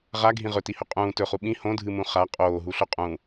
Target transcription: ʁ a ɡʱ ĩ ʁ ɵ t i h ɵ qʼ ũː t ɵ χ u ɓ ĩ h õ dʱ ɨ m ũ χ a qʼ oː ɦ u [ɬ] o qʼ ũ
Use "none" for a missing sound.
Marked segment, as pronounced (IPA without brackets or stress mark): ɬ